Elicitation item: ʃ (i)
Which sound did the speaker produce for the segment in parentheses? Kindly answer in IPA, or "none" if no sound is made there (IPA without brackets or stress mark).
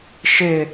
ɪ